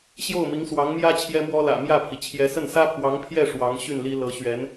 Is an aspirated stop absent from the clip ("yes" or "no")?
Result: no